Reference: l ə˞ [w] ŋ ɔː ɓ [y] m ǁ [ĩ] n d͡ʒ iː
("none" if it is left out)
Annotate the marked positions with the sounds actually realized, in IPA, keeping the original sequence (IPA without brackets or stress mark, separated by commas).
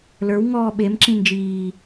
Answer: w, e, ĩ